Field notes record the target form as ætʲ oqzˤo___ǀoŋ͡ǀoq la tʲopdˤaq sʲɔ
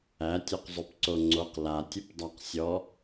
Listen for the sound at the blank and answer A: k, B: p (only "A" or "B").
B